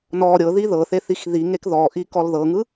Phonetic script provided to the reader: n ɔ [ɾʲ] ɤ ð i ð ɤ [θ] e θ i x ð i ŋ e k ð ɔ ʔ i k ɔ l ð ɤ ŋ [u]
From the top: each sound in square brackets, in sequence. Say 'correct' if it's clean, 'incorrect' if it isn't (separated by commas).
correct, correct, incorrect